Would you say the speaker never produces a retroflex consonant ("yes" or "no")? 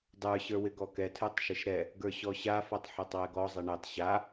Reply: no